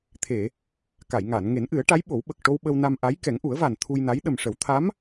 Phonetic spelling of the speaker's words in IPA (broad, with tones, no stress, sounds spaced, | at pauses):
t̪ʰ e˨˩˨ | k a˨˩˨ j ŋ aː˨˩˨ n ŋ e˨˩˦ n ʔ ɨ˨˩˦ ə̯ ʈ a˧˥ j ɓ o˨˩˦ w ɓ ə˨˩ k̚ ʈ o˧ w ɓ ə˧ w n a˧ m ʔ a˧˥ j k ɛ˨˩˦ ŋ ʔ u˨˩˦ ə̯ v a˨˩ n t̪ʰ u˧ j n a˧˥ j ɗ ə˨˩ m ʂ ə˨˩˦ w t̪ʰ a˧˥ m